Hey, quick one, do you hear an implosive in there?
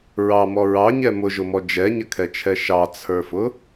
no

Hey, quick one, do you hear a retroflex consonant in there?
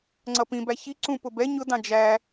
no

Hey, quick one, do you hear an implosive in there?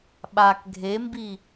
yes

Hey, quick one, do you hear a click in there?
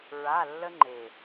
yes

